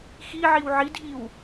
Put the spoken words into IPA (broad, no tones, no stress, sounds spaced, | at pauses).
x i ʕ i w ʕ i dʱ i w